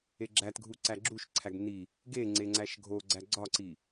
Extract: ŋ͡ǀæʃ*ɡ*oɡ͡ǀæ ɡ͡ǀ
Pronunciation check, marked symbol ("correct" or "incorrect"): incorrect